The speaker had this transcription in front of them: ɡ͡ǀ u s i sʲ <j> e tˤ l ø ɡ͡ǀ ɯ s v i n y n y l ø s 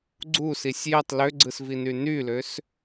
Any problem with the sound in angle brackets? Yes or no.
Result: no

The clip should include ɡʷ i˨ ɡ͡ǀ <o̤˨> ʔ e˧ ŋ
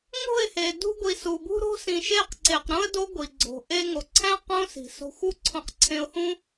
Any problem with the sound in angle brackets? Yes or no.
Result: no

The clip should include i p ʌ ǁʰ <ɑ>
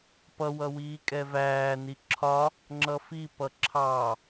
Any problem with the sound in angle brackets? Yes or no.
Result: no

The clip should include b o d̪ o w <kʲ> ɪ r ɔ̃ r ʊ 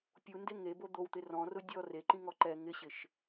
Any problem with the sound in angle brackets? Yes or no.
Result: yes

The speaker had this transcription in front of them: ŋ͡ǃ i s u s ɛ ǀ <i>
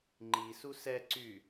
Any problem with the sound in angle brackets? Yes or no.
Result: yes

